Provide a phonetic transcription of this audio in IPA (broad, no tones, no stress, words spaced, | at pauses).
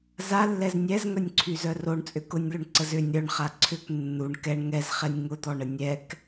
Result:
zalːɛz nʲɛzŋœnʲǀʰyzœ roɳt͡sʼʏ kʊnʲlʏɳǀəz ʏnʲ ɾœɳχa ǀʰʏk nːuɳ kɛɳ ŋɛzχɛnʲ ŋʊd̪ɔɳə nʲɛk